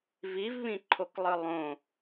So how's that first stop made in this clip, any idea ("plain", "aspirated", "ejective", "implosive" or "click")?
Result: click